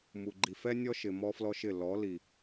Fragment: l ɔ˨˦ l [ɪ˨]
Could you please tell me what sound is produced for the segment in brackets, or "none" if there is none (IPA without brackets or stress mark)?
i˨